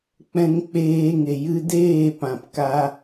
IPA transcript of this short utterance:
k͡p ɛ̃˧ ŋ k͡p eː˧ ŋ e˨ j ɨ˧ d eː˦˨ p ã˨ p k a˦

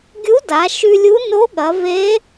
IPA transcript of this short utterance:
ɡʲ u˧˥ d a˩˧ ʃ ʉ˧ lʲ u˧˥ n o˧˥ ɠ ɐ˩˧ v e˧˥

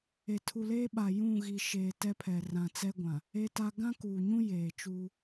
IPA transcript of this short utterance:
e˨ tʰ u˨ l eː˦ ɓ a˨ j ũ˦˨ ɣ i˨ ʃ eː˨ t ɛ˦ pʰ ɛ˨ r ã˨ t͡s ɛ˦ ɡʷ ã˨ | e˦ t a˦ ɡ ã˦ k uː˨ ɲ ũ˦ j eː˨ t͡ʃ uː˦

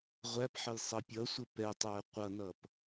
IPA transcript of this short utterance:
ʁʷ æ p ħ ə j sˤ ʌ pʲ ʌ sʷ ə p ɛ tˤ æ qʷ ʌ n ʌ p

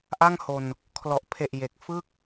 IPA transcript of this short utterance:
ʔ a˥˩ ŋ h o˧ n | kʰ l ɔ˨˩ ʔ pʰ e˨˩ ʔ j e˨˩ k̚ f ɯ˥˩ k̚

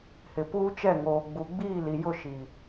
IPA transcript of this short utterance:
h ɪ˨ p uː˦ t͡ʃ ɛ˦˨ ŋ oː˨ ɡ͡b u˨ ɡ͡b iː˦˨ l i˨ j ʊ˦˨ ʃ i˨

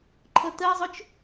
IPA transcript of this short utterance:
ǃʰ ʌ t ɜ zˤ ʊ t͡ʃ

